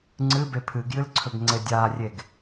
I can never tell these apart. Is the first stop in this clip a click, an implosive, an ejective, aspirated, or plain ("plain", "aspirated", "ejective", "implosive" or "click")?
click